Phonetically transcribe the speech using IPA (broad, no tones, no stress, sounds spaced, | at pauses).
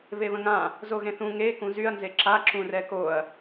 β e β ə̃ ŋ ã | z o ɣ ẽ θ ũ ŋ e k ũ z y ɐ̯ n z e ǁ a ǁ ũ r ɛ k o ɐ̯